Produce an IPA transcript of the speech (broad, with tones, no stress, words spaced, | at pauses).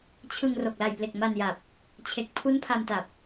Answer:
t͡ɕʰɯ˧ŋ ro˨˩k̚la˨˩jple˨˩k̚ ma˧nja˨˩p̚ | t͡ɕʰe˨˩k̚ pʰu˦˥npʰa˧mta˨˩p̚